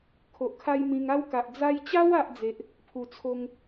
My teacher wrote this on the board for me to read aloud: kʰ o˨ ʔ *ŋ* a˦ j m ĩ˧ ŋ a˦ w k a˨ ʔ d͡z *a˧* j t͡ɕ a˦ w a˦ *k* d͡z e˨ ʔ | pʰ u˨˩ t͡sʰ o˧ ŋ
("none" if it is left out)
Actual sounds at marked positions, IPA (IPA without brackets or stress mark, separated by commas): kʰ, a˧, ʔ